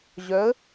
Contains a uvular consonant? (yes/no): no